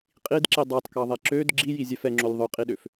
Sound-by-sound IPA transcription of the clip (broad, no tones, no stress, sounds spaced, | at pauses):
qʼ i d ǁ i dˤ ɑ t k ɑ ðˤ ɛ ǁ ø d ɡ͡ǁ i j i zʲ ɛ f ɛ ŋ͡ǁ o lʲ ðˤ ø qʼ i ɗ ø f